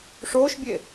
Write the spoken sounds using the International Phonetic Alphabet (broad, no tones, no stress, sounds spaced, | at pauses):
ʂ oː ʃ bʲ e